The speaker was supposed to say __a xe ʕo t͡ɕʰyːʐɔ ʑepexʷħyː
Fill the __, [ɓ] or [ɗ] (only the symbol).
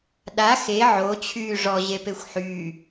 ɗ